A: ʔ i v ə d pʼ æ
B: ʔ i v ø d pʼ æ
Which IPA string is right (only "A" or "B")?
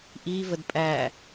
A